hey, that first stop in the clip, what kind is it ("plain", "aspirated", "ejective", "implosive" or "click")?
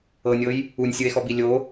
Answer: plain